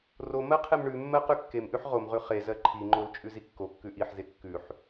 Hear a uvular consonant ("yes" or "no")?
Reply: yes